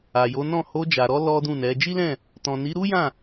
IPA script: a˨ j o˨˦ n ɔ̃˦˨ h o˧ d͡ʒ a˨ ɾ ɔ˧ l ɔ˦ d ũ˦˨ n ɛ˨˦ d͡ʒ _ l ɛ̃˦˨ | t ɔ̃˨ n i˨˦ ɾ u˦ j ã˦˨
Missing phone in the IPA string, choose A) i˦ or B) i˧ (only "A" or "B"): A